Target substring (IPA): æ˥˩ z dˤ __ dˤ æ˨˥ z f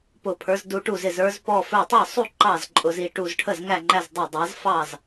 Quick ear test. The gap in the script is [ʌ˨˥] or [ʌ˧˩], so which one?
ʌ˧˩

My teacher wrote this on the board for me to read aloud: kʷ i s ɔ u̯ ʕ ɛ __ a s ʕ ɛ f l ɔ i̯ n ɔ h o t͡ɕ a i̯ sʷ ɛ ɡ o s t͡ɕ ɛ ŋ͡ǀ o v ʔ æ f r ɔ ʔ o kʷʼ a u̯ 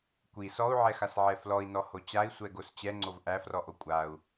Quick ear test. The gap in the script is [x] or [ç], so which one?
x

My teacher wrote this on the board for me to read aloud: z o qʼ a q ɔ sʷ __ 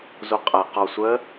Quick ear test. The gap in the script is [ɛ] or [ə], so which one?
ə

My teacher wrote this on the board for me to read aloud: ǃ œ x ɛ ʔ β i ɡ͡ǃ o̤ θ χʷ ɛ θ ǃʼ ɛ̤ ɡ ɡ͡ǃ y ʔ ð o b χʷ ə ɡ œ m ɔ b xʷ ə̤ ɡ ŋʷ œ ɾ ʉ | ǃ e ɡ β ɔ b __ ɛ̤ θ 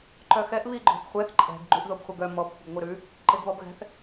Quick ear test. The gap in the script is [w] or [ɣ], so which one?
ɣ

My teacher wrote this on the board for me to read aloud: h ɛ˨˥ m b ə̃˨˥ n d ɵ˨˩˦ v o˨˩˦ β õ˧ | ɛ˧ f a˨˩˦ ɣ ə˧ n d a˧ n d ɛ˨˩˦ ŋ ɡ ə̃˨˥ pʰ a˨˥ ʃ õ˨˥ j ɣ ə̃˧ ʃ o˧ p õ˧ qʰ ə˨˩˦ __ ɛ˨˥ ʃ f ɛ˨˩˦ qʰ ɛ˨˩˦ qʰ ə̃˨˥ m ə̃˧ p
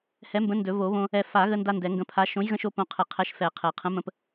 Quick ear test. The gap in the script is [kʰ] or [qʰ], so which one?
qʰ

